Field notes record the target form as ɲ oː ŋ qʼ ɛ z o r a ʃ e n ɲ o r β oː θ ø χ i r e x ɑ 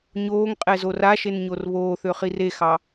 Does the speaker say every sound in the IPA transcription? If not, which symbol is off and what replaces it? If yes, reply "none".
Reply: none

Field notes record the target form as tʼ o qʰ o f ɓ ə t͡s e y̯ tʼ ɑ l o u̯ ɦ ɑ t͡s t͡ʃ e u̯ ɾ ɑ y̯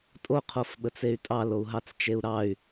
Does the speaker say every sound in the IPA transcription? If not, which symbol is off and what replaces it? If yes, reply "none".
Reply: none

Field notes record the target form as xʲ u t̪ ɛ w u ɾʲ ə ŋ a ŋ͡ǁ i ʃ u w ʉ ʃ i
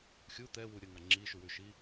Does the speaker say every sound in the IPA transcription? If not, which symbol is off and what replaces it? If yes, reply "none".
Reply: none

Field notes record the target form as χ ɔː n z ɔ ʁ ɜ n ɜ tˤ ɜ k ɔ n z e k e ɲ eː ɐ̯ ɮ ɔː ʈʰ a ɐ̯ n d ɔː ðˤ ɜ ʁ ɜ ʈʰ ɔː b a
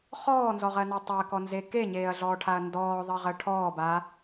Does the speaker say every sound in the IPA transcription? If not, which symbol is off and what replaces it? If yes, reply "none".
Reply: none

